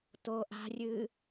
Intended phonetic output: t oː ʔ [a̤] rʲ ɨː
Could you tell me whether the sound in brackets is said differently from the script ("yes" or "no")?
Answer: no